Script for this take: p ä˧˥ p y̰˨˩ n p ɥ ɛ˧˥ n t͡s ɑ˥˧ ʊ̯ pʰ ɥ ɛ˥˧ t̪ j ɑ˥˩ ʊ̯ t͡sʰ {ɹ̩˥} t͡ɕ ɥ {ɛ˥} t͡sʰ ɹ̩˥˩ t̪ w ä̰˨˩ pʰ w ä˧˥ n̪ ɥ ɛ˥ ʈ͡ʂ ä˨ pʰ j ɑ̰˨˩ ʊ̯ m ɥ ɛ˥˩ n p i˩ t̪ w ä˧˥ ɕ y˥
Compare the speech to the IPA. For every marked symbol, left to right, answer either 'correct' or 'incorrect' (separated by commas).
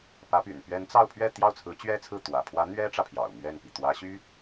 incorrect, correct